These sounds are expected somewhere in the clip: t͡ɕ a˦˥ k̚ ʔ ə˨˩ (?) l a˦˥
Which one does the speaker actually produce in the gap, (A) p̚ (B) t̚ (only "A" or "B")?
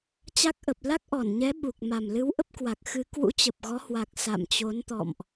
A